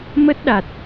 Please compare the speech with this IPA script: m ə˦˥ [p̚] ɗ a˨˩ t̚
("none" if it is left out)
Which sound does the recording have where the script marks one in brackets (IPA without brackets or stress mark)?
t̚